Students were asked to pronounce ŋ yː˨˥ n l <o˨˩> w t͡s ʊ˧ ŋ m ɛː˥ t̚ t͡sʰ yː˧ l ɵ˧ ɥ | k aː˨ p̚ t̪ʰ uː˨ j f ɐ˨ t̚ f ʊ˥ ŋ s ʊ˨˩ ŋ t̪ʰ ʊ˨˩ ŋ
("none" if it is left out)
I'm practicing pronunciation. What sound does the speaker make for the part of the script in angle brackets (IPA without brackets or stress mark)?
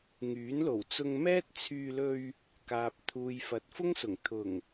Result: o˨˩